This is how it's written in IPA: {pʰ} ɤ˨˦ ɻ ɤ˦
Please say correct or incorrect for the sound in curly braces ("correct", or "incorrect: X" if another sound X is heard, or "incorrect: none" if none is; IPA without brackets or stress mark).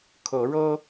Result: incorrect: kʰ